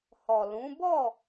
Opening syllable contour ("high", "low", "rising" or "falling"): low